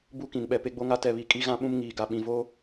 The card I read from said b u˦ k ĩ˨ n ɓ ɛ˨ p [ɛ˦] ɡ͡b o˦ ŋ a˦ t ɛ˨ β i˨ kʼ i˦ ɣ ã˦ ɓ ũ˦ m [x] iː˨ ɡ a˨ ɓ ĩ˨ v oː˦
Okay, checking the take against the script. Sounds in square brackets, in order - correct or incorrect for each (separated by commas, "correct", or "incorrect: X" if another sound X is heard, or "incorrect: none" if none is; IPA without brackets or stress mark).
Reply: incorrect: e˦, incorrect: ŋ